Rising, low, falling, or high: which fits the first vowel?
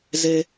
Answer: low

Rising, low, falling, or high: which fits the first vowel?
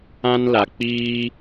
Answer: high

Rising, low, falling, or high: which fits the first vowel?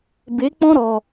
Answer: rising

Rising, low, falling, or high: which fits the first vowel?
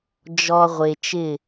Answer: low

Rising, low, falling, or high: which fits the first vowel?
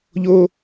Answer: high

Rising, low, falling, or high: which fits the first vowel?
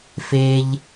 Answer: high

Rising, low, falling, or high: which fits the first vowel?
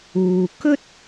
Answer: low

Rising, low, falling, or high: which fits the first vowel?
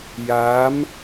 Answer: rising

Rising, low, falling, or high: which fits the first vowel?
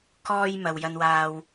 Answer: high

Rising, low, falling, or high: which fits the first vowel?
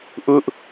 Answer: high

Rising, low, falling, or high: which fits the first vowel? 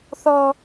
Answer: high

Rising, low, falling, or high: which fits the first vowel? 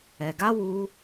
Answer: low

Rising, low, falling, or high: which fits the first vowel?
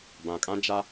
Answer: low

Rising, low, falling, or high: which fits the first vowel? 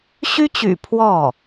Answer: high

